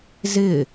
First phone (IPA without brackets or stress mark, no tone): z